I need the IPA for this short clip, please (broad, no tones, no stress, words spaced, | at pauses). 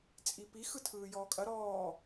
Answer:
t͡sʼipi xɯtʰɯːjɔːkʼɐ ɾɔː